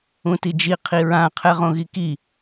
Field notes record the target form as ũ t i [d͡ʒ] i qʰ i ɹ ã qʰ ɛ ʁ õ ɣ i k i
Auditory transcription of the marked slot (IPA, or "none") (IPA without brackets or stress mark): d͡ʒ